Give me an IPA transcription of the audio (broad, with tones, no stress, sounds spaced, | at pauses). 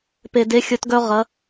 p e˩ d e˩˧ xʲ ɵ˩˧ t ɡ œ˧ ʁ ɐ˩˧